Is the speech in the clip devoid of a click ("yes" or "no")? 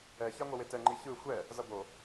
no